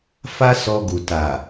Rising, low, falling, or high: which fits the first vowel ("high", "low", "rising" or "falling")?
high